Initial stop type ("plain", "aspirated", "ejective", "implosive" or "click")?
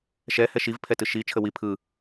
aspirated